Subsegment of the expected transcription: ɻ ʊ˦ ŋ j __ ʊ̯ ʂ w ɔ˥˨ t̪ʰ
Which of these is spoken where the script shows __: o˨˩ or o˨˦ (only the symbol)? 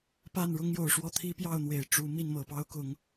o˨˩